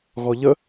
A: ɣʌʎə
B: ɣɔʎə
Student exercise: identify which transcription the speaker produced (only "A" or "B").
B